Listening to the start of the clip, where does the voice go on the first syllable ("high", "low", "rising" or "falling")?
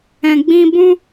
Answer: low